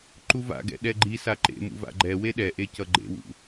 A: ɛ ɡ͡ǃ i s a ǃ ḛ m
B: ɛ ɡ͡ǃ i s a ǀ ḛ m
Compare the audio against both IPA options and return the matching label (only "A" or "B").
A